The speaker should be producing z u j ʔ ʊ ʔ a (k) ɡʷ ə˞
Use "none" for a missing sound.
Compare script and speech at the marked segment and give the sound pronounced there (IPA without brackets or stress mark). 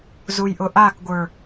k